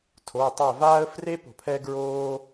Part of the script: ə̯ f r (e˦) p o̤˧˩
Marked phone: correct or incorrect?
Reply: correct